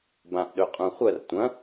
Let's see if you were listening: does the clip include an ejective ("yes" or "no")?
yes